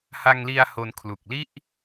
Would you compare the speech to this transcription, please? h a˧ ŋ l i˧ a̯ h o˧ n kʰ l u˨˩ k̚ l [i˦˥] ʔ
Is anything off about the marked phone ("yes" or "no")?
yes